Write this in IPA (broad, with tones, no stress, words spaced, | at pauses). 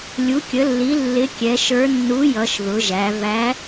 lʲu˩˧kʲə˩˧lːi˩˧ lːɪ˨˥kʲɛ˩˧ʃə˞˨˥ nːu˨˥jʌ˩˧ʃ ðʊ˩˧ʒæ˩˧ væ˨˥